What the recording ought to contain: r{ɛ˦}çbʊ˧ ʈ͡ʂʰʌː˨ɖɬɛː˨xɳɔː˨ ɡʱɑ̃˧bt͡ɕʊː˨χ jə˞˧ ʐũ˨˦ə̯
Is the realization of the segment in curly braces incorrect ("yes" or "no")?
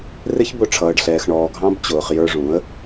yes